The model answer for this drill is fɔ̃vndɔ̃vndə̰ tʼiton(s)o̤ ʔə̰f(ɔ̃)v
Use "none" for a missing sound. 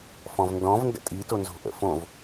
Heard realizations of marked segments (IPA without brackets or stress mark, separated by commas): z, õ